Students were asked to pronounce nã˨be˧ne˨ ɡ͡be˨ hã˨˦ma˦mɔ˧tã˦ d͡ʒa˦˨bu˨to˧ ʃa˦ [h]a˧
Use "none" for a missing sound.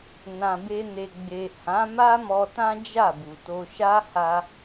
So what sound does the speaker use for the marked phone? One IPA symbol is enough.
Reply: h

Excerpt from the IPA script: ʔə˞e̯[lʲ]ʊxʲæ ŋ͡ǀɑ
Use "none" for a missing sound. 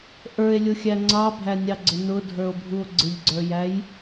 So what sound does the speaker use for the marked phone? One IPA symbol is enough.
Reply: lʲ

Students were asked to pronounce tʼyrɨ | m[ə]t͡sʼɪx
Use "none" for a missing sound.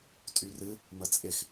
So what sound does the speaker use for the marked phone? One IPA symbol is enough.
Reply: ə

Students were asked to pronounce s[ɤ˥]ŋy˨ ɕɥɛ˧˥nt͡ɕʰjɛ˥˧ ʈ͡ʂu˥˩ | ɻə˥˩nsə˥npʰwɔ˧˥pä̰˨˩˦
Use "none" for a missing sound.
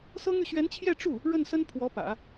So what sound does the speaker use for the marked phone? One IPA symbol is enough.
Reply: ɤ˥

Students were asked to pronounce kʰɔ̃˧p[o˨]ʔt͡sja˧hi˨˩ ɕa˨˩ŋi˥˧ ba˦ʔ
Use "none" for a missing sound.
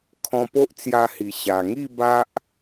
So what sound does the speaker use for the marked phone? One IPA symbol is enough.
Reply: o˦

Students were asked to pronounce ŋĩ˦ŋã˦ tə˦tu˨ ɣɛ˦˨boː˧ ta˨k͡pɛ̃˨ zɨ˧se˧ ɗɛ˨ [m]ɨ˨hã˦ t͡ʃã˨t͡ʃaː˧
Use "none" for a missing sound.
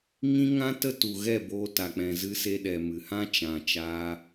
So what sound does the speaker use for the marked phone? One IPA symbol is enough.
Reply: m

